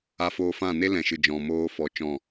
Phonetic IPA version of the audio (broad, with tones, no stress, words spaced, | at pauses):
a˧foː˧fã˦˨ ne˦lɛ̃˨ʃɨ˨d͡ʒɔ̃˨ moː˧fɔ˨˦ t͡ʃɔ̃˦˨